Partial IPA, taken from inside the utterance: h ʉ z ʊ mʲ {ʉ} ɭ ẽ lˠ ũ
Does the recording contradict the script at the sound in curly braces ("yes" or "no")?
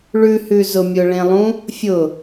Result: yes